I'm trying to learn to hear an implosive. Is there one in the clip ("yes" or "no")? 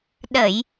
yes